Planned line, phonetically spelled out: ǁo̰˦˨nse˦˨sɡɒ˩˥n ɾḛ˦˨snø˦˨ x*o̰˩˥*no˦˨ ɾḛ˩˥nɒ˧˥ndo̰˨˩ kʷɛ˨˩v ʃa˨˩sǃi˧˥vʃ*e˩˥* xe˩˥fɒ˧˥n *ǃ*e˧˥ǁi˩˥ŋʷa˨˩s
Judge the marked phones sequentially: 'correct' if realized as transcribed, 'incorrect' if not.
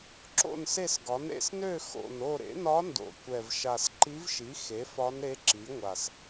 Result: incorrect: o̰˨˩, incorrect: i˩˥, incorrect: ɾ

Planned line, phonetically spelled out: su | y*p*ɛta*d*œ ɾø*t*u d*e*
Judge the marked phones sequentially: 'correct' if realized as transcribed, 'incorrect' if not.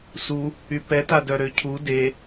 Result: correct, correct, incorrect: cʰ, correct

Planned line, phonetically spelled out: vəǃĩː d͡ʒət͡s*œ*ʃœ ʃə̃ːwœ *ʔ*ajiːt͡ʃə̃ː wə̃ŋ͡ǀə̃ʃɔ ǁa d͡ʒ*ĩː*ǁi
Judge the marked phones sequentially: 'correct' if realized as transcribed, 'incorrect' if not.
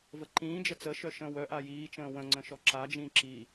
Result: incorrect: ə, correct, correct

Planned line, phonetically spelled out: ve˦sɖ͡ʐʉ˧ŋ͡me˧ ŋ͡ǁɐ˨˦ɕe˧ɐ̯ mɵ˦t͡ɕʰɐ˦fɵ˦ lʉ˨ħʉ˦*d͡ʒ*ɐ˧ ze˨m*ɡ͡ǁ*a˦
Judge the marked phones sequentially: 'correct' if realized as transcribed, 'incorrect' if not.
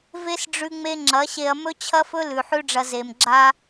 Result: incorrect: ɖ͡ʐ, correct

